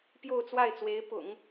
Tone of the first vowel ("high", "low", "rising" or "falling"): falling